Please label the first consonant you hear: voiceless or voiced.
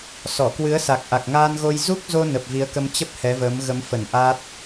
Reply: voiceless